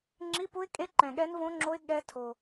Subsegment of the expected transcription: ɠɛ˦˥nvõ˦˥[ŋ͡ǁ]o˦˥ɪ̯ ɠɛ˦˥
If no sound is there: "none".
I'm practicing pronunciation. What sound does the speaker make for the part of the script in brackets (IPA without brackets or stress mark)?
ŋ͡ǁ